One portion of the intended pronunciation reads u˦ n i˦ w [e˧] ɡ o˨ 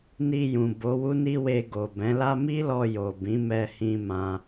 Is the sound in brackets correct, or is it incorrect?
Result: correct